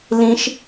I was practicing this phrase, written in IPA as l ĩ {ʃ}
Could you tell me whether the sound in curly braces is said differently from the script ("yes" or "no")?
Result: no